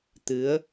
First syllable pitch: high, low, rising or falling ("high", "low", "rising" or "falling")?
rising